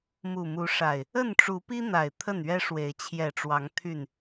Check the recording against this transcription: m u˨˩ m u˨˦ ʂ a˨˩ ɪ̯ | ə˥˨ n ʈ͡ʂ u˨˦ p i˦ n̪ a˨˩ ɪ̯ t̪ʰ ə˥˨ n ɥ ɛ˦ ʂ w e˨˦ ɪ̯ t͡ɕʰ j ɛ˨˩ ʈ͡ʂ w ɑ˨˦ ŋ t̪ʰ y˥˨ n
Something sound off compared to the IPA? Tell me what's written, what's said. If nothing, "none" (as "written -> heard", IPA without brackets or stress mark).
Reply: none